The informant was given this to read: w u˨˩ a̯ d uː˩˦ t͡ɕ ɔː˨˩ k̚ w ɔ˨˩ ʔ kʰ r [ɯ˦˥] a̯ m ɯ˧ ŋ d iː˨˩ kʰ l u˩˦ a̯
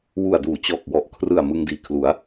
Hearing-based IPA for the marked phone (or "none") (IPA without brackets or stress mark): ɯ˨˩